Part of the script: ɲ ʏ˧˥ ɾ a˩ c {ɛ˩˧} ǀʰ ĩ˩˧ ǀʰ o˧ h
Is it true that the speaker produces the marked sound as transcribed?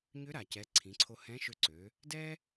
yes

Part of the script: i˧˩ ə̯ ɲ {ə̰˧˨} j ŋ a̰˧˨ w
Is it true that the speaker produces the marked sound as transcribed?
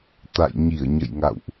yes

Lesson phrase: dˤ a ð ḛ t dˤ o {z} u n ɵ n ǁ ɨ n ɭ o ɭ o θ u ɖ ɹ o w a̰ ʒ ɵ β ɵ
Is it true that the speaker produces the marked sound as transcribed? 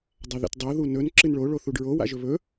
no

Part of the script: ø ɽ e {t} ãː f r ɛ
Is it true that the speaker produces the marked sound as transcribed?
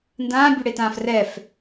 yes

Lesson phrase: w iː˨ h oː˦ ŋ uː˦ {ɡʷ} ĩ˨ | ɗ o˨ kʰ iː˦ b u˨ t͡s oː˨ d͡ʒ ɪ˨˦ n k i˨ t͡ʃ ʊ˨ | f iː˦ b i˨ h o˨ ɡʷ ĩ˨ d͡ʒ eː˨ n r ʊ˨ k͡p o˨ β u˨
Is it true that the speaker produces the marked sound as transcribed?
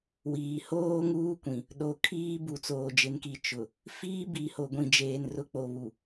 no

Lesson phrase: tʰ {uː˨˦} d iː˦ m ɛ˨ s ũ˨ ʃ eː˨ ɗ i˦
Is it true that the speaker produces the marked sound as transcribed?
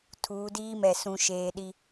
yes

